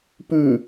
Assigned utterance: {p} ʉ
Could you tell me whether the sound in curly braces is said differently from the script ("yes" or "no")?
no